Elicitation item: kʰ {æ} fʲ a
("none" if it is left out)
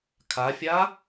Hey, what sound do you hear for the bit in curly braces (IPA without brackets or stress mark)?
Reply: a